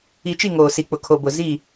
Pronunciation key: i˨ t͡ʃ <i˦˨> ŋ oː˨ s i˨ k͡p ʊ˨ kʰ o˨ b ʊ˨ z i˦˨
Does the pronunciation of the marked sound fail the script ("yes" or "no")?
no